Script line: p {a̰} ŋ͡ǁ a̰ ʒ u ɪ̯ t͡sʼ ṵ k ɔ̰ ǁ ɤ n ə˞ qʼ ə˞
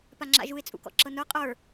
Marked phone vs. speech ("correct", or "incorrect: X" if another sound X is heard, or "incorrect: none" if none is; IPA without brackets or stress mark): incorrect: a